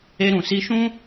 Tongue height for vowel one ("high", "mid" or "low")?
mid